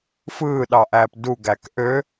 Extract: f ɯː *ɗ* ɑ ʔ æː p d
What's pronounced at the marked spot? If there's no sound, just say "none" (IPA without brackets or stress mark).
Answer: ɗ